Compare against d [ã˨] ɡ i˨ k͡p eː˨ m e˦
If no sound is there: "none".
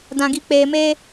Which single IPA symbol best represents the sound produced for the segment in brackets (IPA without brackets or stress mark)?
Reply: ã˨